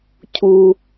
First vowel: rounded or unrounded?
rounded